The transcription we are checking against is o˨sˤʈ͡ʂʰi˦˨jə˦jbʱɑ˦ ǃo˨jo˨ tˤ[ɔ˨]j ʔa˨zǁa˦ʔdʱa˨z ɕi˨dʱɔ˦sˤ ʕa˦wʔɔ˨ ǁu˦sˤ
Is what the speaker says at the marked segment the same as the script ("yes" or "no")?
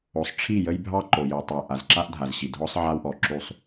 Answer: no